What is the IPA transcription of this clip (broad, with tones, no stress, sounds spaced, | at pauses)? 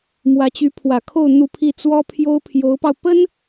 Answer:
m w ä˧˥ t͡ɕ y˧˥ pʰ w ä˨˩ kʰ o˥˧ ʊ̯ n̪ u˥˧ pʰ i˥˩ t͡s w ɔ˥ pʰ j o˥ ʊ̯ pʰ j o˧˥ ʊ̯ p ɑ˧ ʊ̯ p ə˥ n